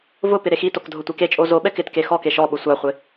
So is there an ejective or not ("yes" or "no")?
yes